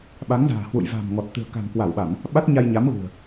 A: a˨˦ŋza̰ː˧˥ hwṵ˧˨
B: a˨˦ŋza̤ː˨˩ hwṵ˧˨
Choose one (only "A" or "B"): B